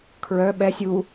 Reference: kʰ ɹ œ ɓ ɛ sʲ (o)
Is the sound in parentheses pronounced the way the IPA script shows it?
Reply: no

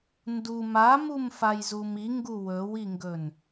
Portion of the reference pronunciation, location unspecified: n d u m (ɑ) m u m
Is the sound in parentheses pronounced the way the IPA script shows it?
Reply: no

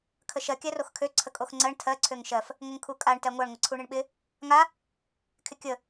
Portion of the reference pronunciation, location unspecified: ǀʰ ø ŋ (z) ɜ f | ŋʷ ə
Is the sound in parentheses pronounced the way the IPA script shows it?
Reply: no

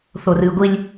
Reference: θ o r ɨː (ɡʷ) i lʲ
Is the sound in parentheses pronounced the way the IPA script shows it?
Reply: yes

